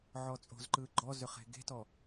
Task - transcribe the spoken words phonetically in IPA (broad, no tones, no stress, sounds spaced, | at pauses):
ʕ ɔ t͡sʼ o̤ z ǃ ɯː ɡ͡ǃ ɔ z ʏ χ e̤ ɡ e̤ t ɔ